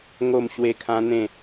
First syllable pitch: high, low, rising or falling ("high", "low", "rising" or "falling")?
falling